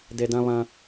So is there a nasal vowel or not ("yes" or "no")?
yes